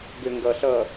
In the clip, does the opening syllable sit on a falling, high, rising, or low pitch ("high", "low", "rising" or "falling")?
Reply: low